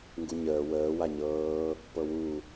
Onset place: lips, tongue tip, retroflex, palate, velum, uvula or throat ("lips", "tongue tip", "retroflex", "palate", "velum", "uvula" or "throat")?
velum